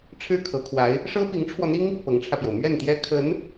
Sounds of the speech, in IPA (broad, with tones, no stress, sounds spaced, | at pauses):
ʈ͡ʂʰ ɻ̩˥˩ kʰ ɤ˧˥ kʰ w a˧˥ ɪ̯ | ʂ ɤ˥ p i˧˥ ŋ ʈ͡ʂʰ w ɔ˧ n̪ i˥ ŋ | p ɤ˧˥ ŋ ʈ͡ʂʰ ä˧ p j o˩ ʊ̯ m ɥ ɛ˥˩ n t̪ j ɛ˥ kʰ ə˧˥ n